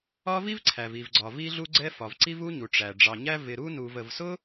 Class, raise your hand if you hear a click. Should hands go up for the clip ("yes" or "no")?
yes